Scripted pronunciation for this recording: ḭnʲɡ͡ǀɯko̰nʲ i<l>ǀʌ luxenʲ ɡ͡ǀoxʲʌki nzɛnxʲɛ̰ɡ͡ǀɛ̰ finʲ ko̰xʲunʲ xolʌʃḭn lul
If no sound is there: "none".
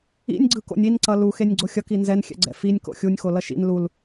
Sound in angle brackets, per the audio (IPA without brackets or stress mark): n